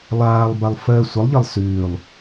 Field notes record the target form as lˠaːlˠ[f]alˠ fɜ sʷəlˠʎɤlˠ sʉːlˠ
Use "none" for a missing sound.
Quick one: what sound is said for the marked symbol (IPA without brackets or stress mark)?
b